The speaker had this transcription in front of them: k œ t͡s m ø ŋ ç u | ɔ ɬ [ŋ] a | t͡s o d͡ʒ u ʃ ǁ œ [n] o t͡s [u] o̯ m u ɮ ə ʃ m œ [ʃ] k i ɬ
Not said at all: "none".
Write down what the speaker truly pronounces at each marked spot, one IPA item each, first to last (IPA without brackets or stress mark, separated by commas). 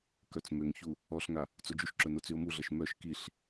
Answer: ŋ, n, y, ʃ